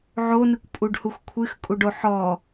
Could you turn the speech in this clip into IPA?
ʕonɨkʷpʼuɖhux kʷʰɨxkʼuɖo ħɔ

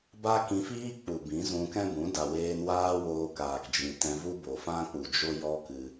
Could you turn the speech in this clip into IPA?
ba˦kĩ˧fiː˦k͡pu˨ bĩ˨˦zũ˧kɛ̃˦bũ˨˦ da˨weː˧n waː˦woː˧kaː˨k d͡ʒĩ˨tɛ̃˧vu˦ bo˨fã˦k͡pu˨d͡ʒo˦ jɔ˦kɨ˧

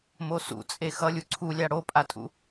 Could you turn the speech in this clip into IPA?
mosṵ t͡sʼexʌlʲu ǀʰulʲa ɽopʼatʼṵ

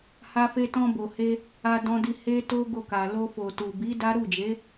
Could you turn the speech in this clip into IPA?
ha˧fe˧tɔ̃˧bo˨ he˧ | a˧ dɔ̃˧di˧ he˦to˦ ɡo˦˨ka˨ lo˧ fo˨tu˨ bi˨˦ da˦ ɾu˦˨d͡ʒe˨˦

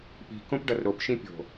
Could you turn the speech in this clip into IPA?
pi̤ kõpɖʌrɾop ʃĩpʲo̤

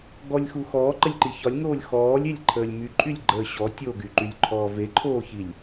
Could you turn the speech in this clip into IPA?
ɡɔlʲxu xɔːǃəlʲǃi çɒlʲŋoːlʲ xɔːlʲelʲǃʰəːlʲ myǃʼylʲɡ͡ǃəː ɕɔ tʲoɡyǃylʲǃʰɔː veǃʰoːçilʲ

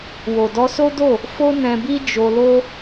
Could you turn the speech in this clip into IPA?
wo˨dɔ˧so˦do˦˨ | fo˦nɛ̃˧bi˦ d͡ʒo˧lo˦

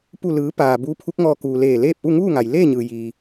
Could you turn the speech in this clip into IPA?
pu˧˩lɯː˩˧ paː˩buː˧˥pʰu˧˥k̚ŋɔː˧ kuː˩ leː˧˩leː˥˨p̚ʔu˥˨ ŋuː˥˨ŋa˩jleː˥˨ɲɯː˩ jiː˩

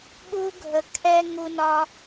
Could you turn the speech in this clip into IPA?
ɠu˦ɡʱə˧ kʰɛ˦ ŋu˦nɒ˦

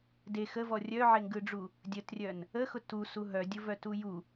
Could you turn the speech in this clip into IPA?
de xəvɔ rʲœʕeŋɡɯɖ͡ʐu | dʲətrʲœn | əxʊ tusu ɦœdʲʊvœtu ju

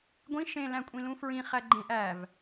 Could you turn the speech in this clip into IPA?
ɡʷĩ ʃẽ læ̃kʷʼĩlũfɹĩ χæɡ͡ǃẽʔ æv

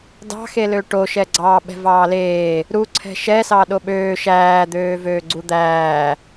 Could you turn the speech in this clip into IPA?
dɑ̤xelø ʈo ʃɛɡ͡ǀɑ ɓɛ̤vɑːleː | ɾuǀʰɛ̤ ʃɛsɑ ɗoɓøː ʃæːd̪øː vøːɡ͡ǀud̪æː

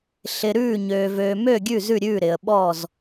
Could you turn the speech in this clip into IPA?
ɬɪ˨ ɾʉː˦˨ɲøː˨v øː˨mø˦˨ ɡʲʉ˦˨zʉ˦˨ɾʲʉː˦˨ ɾɪ˨ə̯ɓɔ˦˨z

